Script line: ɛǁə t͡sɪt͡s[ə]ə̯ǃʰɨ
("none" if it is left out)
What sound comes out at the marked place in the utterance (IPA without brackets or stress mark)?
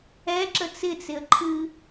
ɪ